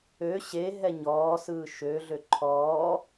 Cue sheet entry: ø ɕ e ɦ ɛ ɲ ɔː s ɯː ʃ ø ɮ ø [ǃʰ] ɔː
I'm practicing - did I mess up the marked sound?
no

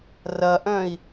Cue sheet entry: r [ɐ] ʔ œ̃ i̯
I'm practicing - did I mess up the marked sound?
no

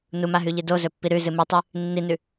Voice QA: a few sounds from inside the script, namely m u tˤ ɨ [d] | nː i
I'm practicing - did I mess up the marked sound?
yes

